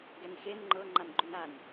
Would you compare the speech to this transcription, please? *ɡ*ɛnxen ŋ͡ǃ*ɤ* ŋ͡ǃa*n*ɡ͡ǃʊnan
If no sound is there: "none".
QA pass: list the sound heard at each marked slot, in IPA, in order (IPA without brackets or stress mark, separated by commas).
ɡ, ɤ, n